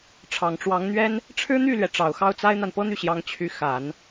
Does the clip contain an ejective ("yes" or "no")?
no